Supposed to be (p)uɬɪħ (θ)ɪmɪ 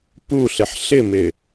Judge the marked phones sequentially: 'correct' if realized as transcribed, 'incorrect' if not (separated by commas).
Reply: correct, incorrect